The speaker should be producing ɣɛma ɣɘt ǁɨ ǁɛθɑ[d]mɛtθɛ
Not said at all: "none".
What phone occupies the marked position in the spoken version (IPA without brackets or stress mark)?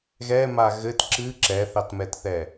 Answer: t